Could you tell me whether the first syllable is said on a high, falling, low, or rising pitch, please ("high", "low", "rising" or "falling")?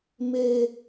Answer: high